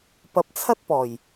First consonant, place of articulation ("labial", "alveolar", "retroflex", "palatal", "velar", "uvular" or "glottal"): labial